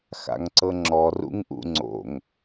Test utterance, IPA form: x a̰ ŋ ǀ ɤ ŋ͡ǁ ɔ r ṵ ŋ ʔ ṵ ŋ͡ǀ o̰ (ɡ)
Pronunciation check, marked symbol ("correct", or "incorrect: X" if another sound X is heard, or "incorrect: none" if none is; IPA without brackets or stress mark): incorrect: ŋ